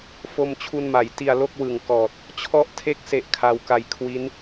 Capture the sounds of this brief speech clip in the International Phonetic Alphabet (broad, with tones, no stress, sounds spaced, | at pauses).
f o˧ m t͡ɕʰ u˧ n m a˩˦ j t i˧ a̯ l o˥˩ k̚ w ɯ˨˩ ŋ k ɔː˨˩ t̚ | t͡ɕʰ ɔ˦˥ ʔ tʰ e˦˥ k̚ s e˨˩ ʔ kʰ a˧ w k a˧ j kʰ w i˦˥ n